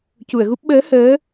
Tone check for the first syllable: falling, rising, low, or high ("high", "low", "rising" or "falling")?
low